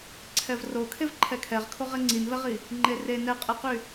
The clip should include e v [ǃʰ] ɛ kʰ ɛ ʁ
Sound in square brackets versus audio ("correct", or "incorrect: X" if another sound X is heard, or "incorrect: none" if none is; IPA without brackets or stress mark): correct